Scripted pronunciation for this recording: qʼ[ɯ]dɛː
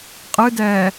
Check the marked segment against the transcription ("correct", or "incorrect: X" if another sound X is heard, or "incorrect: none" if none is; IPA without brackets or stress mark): correct